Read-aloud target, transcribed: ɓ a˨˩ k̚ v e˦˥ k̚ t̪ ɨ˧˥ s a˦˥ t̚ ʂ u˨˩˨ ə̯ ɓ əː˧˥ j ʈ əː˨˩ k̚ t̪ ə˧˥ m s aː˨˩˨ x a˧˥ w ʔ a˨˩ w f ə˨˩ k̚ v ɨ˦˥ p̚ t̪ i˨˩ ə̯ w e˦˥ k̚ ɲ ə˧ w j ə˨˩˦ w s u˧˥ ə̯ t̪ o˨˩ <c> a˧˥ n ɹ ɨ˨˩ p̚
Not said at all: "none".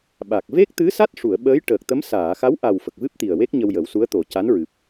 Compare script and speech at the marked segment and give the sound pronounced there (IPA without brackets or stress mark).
c